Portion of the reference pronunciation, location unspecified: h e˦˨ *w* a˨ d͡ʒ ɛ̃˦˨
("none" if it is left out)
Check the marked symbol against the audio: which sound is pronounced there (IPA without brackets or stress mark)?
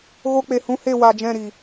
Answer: w